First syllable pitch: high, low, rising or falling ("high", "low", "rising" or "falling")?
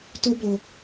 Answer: high